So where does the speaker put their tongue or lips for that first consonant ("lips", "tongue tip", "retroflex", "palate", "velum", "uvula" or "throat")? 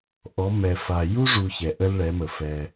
throat